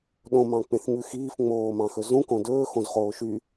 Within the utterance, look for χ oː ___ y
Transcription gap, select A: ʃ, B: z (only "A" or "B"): A